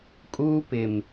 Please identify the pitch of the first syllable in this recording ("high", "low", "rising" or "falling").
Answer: high